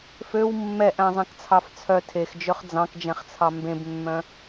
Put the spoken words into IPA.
f ø w mː ɛ ʔ æ̃ zˤ ɛ̃ k t͡sʰ ɑ f t͡sʰ œ tʰ e x d͡ʒ ø χ d͡z ɑ̃ k d͡ʒ ɛ̃ χ t͡sʰ ɑ m b ẽ b mː œ̃

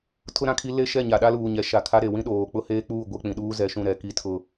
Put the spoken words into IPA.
tʰ ʊ˦ ɾ ã˨ kʰ i˦ l e˦ ʃ ɛ˦˨ ɲ a˨ ɗ a˦ l uː˨ ɲ ɛ˨ ʃ a˨ kʰ a˦ ɾ e˨ w ĩ˦ ɗ oː˨ k͡p ʊ˦ h eː˦ k͡p uː˦˨ ɡʷ e˦ k͡p ĩ˨ ɗ uː˦ z ɛ˨˦ ʃ ũ˨ ɾ ɛ˨ k i˦ tʰ ʊ˦

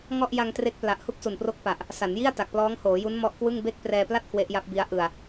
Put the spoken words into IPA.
ŋ ɔ˥˩ ʔ j a˧ ŋ t r e˦˥ k̚ p l a˨˩ ʔ h u˥˩ k̚ s u˨˩ n p r o˦˥ k̚ p a˨˩ ʔ | s a˩˦ n j i˥˩ a̯ t a˨˩ k̚ p l ɔː˦˥ ŋ h oː˩˦ j u˦˥ n m ɔ˦˥ ʔ k w ɯ˥˩ ŋ b e˥˩ k̚ p r ɛː˧ p l a˥˩ t̚ k w e˦˥ ʔ j a˦˥ p̚ b i˦˥ a̯ ʔ ɯ˧ a̯

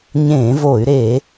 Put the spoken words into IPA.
ɲ ẽː˧˩˧ v o˧˩˧ y̯ ɾ e˧˩˧

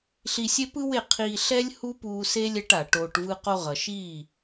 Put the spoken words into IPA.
ɬ i˧ sʲ e˦ p ɯ˦ w e˦˨ qʰ iː˧ ɬ ɛ˦ lʲ h u˦ p uː˧ s e˦ lʲ ɛ˧ ʈ a˨ ʈ oː˧ ʈ v ɯ˦ q o˧ ʁ ʌ˨ ʃ iː˦˨

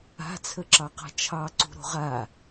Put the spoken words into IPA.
a̤ t͡sʰ ə ǁ ɑ q a̤ t͡ʃʰ ɑ ǀ ṳ ɾ o̤ ʁ a

